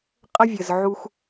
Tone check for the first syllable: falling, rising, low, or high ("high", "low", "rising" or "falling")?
high